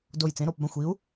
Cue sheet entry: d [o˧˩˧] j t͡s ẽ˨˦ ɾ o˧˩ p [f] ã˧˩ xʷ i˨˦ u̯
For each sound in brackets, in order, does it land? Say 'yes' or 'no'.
no, no

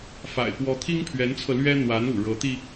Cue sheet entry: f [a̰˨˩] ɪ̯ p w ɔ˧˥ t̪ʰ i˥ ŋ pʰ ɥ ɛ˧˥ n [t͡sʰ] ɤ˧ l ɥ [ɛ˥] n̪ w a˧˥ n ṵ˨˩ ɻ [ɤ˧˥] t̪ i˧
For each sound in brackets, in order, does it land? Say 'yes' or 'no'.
yes, yes, yes, yes

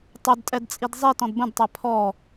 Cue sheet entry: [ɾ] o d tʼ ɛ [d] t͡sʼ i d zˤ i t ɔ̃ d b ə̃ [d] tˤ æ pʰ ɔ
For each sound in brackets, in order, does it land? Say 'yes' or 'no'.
no, yes, yes

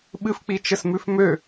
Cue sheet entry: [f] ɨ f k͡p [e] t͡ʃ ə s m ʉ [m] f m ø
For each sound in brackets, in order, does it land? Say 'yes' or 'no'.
no, no, no

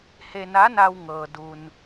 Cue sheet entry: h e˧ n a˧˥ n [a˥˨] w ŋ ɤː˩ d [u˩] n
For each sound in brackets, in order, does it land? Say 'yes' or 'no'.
no, yes

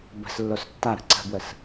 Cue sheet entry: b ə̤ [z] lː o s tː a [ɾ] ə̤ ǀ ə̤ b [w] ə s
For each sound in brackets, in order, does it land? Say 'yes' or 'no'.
no, yes, yes

